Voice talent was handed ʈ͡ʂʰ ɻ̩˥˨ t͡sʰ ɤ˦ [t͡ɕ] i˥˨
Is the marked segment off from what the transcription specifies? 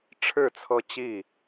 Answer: no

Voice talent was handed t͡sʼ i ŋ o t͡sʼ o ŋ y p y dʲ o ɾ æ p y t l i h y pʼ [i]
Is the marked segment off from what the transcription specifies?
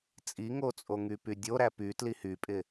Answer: yes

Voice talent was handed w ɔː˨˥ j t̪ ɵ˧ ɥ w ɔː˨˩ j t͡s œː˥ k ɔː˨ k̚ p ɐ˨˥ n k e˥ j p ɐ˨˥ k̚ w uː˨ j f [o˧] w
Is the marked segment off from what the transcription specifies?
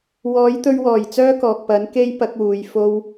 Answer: no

